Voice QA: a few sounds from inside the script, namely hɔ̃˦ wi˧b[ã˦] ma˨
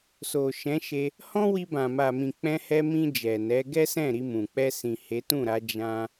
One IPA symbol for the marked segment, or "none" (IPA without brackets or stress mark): ã˨